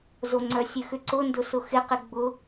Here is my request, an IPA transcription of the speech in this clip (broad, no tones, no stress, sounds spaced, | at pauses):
z o ŋ͡ǀ œ sʲ ø x ʏ ǀ ʊ n d ʊ s ʊ x ɪ q ɪ ɡ͡b ʊ